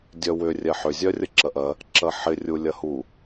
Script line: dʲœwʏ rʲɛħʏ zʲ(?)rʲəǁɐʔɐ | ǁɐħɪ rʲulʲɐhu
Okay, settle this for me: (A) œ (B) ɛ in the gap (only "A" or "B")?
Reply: A